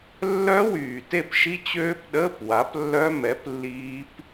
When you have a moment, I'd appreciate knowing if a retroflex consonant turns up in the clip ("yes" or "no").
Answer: no